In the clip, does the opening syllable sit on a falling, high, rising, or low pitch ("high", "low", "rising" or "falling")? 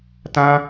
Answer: high